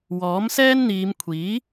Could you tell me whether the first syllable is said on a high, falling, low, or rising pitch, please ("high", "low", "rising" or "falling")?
rising